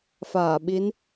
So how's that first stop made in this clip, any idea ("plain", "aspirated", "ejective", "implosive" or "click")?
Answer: implosive